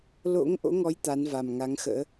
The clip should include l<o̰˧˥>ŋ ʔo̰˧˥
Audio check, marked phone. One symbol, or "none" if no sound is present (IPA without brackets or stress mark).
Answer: o̰˧˥